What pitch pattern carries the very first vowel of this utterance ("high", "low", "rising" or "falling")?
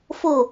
falling